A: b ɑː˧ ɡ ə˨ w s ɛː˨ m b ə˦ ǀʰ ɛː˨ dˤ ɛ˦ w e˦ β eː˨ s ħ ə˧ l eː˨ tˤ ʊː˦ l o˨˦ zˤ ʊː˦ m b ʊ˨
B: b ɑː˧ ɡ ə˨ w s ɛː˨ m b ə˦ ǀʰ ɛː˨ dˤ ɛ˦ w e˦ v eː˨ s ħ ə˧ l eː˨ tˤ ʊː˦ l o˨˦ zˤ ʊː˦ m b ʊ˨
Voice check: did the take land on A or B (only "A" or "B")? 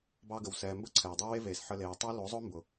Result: B